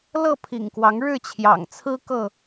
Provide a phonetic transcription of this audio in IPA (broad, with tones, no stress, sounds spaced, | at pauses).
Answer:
l ɤ˥˨ pʰ ḭ˨˩ ŋ k w ɑ˨˦ ŋ ɻ ɻ̩˥˨ t͡ɕʰ j ɑ̰˨˩ ŋ t͡sʰ ɹ̩˦ k ɤ˥˨